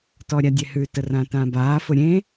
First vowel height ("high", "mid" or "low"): mid